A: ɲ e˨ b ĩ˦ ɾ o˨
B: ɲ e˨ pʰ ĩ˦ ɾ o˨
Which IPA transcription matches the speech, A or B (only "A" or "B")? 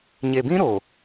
A